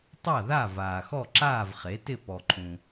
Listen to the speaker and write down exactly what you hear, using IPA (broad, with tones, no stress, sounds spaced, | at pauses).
tˤ a˥˨ ð a˥˨ v aː˨ x ɔ˥˨ ǁ aː˥˨ v χ e˩˥ t ɪ˥˨ p ɔ˨ ǃʰ ũ˨